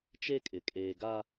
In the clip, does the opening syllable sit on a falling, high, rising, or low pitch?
high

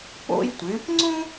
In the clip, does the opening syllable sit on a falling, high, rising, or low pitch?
high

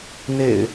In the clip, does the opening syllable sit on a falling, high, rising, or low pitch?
low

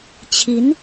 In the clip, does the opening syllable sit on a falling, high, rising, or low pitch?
rising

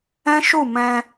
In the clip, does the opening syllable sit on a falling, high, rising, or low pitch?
high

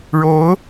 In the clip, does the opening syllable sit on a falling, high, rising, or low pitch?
rising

